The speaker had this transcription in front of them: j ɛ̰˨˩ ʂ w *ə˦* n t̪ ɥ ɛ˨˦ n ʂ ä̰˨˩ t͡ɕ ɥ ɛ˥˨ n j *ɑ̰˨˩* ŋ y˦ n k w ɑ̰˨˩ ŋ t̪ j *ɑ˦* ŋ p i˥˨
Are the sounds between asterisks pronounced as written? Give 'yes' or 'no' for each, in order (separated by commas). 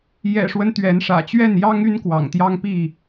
yes, no, yes